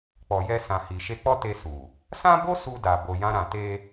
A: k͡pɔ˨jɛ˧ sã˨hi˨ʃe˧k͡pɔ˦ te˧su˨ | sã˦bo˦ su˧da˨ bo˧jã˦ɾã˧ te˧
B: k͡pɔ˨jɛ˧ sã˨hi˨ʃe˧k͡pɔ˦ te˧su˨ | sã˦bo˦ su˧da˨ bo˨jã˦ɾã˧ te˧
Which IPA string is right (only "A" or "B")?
A